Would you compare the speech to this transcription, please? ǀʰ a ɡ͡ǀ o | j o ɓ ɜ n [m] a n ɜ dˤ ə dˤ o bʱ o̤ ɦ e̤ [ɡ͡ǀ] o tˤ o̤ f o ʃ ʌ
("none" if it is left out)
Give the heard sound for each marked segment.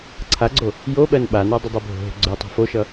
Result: ɓ, ɡ͡ǀ

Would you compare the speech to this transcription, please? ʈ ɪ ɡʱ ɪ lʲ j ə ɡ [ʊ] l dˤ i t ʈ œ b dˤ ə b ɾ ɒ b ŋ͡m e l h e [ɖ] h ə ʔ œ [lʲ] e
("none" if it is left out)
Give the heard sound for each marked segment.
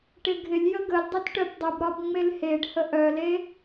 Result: ə, ɖ, l

